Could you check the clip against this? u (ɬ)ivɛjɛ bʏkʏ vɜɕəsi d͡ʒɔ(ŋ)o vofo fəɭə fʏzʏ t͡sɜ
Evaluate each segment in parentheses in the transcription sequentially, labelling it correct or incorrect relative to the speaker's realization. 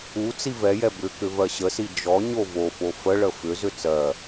incorrect, incorrect

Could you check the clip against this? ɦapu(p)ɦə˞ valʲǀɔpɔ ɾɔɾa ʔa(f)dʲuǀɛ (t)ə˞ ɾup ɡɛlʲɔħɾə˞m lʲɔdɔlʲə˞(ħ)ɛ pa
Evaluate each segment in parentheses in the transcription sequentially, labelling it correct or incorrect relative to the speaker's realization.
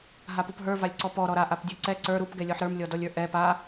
correct, incorrect, incorrect, incorrect

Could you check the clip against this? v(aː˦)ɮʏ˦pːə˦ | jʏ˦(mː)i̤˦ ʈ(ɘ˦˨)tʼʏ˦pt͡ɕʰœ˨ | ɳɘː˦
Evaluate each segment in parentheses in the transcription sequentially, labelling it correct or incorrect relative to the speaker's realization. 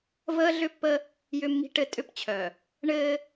incorrect, correct, correct

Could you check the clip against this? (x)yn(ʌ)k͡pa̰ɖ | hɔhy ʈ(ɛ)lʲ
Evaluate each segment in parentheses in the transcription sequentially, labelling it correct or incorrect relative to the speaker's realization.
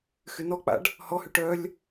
correct, incorrect, incorrect

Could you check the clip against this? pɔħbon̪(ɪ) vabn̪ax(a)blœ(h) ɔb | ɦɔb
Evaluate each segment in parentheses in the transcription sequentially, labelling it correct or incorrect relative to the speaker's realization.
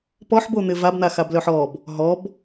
correct, correct, incorrect

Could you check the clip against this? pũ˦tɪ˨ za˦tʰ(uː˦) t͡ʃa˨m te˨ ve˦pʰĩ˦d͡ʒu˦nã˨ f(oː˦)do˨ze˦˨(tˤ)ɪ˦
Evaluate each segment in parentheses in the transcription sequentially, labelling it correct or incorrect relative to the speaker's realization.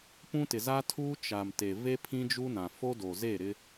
correct, incorrect, incorrect

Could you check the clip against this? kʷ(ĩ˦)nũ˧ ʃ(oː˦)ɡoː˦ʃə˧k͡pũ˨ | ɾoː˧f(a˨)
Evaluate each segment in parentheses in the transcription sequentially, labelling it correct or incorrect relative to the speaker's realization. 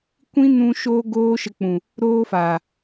correct, correct, correct

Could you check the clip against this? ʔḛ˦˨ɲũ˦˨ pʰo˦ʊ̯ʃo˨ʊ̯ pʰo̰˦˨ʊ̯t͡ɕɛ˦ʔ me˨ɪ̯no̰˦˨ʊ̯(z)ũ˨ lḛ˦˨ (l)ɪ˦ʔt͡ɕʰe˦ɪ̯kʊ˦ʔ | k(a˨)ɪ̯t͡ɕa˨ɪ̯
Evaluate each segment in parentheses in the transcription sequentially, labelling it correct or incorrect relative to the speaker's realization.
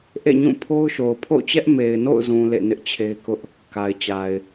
correct, incorrect, correct

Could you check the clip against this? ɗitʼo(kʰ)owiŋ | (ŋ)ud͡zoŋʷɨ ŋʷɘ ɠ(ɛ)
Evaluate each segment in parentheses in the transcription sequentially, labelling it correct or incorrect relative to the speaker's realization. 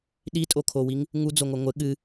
correct, correct, incorrect

